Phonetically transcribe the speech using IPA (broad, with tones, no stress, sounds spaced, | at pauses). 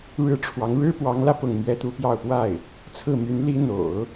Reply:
ɻ ɻ̩˥ ʈ͡ʂʰ w ɑ˧˥ ŋ ɻ ɻ̩˥ p w ɑ˧˥ ŋ l ä˧ p ʊ˥˩ ŋ m ɥ ɛ˥ t̪ u˥ p j ɑ˥˧ ʊ̯ p w a˥˩ ɪ̯ | t͡sʰ ɹ̩˥˩ m y˧˥ n l i˥ n̪ o̰˨˩˦ ʊ̯